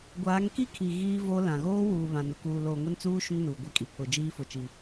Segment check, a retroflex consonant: absent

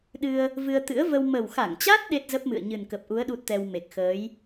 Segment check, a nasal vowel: absent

